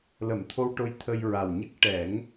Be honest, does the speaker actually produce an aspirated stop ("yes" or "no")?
yes